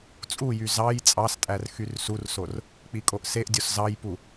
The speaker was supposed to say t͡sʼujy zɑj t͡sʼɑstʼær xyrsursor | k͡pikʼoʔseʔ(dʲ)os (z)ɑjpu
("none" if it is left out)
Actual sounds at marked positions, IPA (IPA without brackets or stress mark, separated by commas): dʲ, z